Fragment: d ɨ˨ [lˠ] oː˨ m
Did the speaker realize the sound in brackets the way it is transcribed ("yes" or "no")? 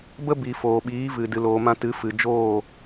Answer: no